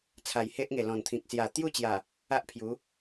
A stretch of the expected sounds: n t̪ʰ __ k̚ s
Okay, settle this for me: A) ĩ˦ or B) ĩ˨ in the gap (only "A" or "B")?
B